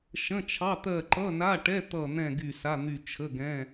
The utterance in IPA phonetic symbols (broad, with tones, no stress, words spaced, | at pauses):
ʃə̃˧˥˧t͡ʃʰɑ˧˥˧ t̪ɜ˦˨ǃʌ˧˥˧na˧˥˧ʈɛ˧˥˧ t̪ʌ˦˨n̪ɛ̃˦˨ ɡy˦˨sa˧˥˧n̪y˦˨ t͡ʃʰə˧˥˧ɡɛ̃˧˥˧